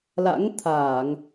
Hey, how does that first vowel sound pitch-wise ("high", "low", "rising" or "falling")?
rising